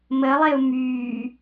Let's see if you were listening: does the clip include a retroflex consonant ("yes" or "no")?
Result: no